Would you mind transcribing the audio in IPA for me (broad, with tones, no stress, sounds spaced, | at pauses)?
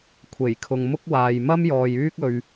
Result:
kʷʰ e˨˩ j kʰ ʊ˨ ŋ m ʊ˥ k̚ w aː˨ j m ɐ˥ m j ɔː˨ j yː˥ k̚ ɵ˧ ɥ